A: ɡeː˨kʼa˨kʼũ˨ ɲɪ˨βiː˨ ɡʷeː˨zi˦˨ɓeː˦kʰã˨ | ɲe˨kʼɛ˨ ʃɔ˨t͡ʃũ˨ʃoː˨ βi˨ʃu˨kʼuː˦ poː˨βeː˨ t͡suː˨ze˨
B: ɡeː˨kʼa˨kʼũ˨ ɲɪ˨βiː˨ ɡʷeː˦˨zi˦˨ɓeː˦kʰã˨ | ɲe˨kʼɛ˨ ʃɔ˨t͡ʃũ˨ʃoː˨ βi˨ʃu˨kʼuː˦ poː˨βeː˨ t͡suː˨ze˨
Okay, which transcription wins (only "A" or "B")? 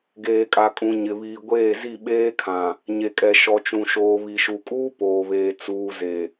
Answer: B